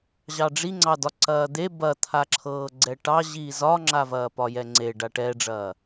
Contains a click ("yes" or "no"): yes